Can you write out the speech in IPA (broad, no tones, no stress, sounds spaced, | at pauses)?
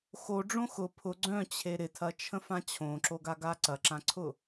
x o ɖ͡ʐ õ x ʊ pʰ ʊ ɡ͡ǀ œ̃ t͡ɕʰ e ɾ ɪ tʰ ɐ t͡ʃʰ ə̃ f ã t͡ɕʰ õ ǁ o ɡ a ɡ a ǀ ɐ ǁ ã ǀʰ ʊ